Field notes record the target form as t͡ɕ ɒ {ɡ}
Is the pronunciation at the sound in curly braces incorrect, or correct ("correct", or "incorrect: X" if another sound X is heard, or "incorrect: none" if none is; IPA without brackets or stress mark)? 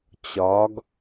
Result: correct